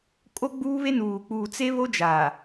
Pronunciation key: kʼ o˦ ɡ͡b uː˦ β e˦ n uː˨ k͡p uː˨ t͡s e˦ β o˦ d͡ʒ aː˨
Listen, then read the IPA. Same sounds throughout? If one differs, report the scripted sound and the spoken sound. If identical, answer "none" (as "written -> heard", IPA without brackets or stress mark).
none